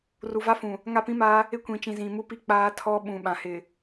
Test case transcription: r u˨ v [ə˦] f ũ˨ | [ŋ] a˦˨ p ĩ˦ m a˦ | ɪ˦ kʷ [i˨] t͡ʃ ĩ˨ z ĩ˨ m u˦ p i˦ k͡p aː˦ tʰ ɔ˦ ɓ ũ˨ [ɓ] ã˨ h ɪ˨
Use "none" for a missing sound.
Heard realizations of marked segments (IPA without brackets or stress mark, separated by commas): a˦, ŋ, ĩ˨, ɓ